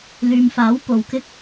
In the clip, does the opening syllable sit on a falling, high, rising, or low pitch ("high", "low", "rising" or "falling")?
low